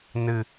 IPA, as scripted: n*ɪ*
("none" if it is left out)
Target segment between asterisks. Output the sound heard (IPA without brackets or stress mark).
ɨ